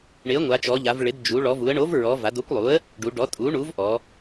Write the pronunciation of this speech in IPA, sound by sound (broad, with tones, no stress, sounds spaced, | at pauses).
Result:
ɳ ɪ˩˥ ə̯ ŋʷ a˩˧ t͡ʃ ɔ˩˧ ʎ a˩˧ v ɭ ɪ˩˧ d d͡ʒ u˩˧ ɭ ɔ˩˧ v u˩˧ ə̯ ɳ o˩˥ v ɹ ɔ˩˧ v a˩˧ d o˩˥ kʷ lˠ u˩˥ ə̯ | ɖ u˩˧ ɖ ɔ˩˥ tʼ u˩˥ ɳ u˩˥ v ʔ ɔ˩˧